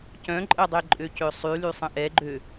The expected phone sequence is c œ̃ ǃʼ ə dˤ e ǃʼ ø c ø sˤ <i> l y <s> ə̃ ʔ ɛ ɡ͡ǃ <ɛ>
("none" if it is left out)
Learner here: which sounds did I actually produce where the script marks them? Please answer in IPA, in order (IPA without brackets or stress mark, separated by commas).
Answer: y, sˤ, ø